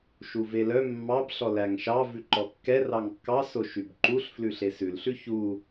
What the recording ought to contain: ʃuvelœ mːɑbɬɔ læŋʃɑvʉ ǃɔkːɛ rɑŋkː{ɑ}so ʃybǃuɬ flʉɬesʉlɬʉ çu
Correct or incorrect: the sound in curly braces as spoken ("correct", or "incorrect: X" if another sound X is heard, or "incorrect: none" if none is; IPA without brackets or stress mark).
correct